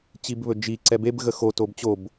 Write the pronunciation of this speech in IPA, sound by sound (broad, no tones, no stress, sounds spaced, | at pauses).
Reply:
t͡ɕ i b β ɵ d͡ʒ i ǀ ɛ b e b ɣ ə x o t o b t͡ɕ o b